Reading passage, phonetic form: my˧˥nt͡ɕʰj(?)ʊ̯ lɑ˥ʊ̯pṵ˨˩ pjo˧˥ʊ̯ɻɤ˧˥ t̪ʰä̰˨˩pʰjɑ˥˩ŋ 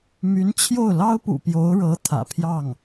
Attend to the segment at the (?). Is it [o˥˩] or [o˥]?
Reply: o˥˩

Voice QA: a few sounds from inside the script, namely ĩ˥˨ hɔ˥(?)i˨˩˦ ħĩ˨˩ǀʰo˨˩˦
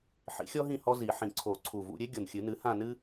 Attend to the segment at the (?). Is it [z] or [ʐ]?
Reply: z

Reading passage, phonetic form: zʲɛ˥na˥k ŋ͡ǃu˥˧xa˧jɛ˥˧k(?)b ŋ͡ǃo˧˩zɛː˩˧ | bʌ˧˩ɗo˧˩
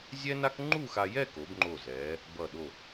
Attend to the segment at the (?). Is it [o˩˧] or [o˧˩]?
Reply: o˩˧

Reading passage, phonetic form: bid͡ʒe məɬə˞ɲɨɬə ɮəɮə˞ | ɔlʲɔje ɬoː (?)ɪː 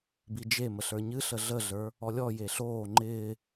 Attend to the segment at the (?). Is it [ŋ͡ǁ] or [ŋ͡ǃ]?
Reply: ŋ͡ǃ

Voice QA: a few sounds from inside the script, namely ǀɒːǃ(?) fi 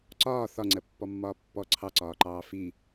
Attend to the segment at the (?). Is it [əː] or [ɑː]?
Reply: ɑː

